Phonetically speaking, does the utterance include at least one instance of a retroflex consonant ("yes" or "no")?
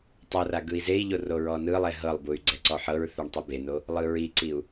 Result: yes